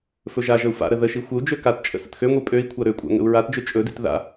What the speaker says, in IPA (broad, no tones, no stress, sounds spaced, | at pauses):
f ɵ ʒ a ʒ ə u̯ f a̰ ɾ ə ð ə ʃ i xʷ ə u̯ d͡ʒ ø k a t t͡ʃʼ ə̰ s ə̰ t x ø ŋʷ i pʼ ø i̯ kʷʰ a ɾ ø kʷʼ a̰ ŋ ə̰ u̯ ɹ a t d͡ʒ ø t͡ʃʼ ɵ d ḭ t ð a̰